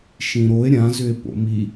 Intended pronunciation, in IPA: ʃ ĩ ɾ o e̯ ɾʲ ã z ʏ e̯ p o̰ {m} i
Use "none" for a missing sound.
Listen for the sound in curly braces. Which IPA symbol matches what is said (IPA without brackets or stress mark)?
m